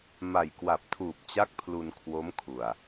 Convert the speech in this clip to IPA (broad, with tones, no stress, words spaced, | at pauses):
ma˨˩jkwa˨˩p̚tʰuː˨˩p̚ t͡ɕa˦˥k̚ pʰlu˧nkʰwo˦˥mkʰu˨˩a̯